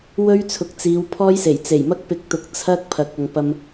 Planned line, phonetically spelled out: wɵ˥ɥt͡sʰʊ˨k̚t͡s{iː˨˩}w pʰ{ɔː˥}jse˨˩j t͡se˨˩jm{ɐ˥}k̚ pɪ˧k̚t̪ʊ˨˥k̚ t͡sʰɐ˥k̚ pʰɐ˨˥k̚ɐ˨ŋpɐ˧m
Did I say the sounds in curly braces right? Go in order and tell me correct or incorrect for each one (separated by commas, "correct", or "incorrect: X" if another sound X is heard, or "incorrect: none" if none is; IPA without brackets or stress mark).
incorrect: iː˨˧, correct, correct